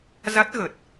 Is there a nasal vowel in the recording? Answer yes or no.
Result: no